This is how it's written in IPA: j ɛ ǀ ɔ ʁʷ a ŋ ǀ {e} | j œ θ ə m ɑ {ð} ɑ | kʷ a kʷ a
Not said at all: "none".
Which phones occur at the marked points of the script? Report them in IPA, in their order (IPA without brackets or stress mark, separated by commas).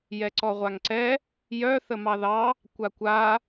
ɛ, ð